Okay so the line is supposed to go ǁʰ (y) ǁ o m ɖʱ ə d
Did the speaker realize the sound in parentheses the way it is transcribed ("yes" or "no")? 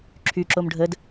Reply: yes